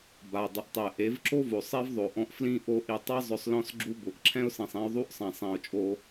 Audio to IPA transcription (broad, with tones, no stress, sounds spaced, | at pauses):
b a˨ dˤ ɪ˨ ʔ tˤ ɛ˨ ʔ e˨˦ v ǁ o˦ v o˨ sˤ e˦ v ðˤ o˨ ʔ ɔ̃˧ ʔ f l ĩ˦ ʔ o˧ ʔ i˨ tˤ a˦ zˤ ʊ˧ sˤ l ɔ̃˦ s ɡ͡ǁ u˦ b ʊ˨ ʔ ǁʰ ɛ̃˦ ʊ̯ s ĩ˨ sˤ ẽ˧ ʊ̯ ðˤ u˦ ʔ sˤ ɛ̃˨ sˤ ẽ˨ ʊ̯ t͡ʃʼ o˧